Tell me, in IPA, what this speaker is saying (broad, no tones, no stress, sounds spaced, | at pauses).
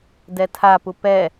d ɛ tʰ a p u p ɛ